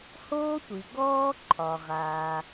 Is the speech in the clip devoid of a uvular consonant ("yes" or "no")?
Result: no